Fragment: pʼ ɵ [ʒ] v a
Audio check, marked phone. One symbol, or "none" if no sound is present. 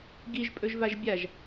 ʒ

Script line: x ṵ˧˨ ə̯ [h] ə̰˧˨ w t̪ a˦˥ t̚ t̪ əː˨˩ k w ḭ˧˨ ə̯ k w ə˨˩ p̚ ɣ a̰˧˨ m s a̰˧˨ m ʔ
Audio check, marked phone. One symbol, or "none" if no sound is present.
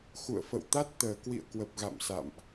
f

